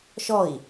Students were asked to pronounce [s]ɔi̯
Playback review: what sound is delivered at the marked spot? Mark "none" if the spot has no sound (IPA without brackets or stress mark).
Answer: ʃ